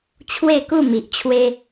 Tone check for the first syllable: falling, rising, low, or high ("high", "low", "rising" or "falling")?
falling